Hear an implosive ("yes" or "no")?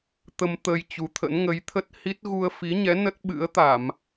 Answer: yes